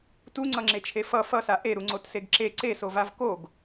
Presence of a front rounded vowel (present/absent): absent